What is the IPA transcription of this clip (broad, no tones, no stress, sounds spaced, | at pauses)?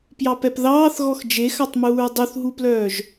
p j ɑ p ɛ p ð ɑː θ ɣ ɔ x d͡ʒ e x ɑ tˤ m uː ɹ dˤ u θ ɦ u p l œː ʒ